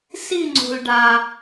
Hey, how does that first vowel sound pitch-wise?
falling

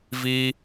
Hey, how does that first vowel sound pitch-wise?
high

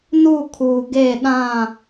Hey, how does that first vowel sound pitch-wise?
falling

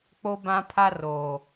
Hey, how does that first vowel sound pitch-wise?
high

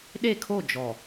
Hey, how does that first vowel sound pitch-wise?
falling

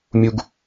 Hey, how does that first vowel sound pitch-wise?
high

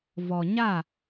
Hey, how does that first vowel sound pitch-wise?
low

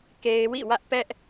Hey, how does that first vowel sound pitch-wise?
low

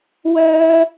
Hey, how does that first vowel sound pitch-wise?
high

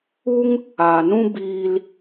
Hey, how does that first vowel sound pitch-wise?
high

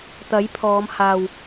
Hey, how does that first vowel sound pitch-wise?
rising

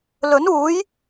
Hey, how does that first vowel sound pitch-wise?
rising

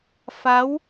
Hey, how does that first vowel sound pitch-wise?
rising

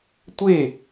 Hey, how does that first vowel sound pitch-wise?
falling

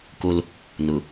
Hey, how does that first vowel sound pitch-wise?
high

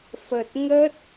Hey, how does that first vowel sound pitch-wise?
low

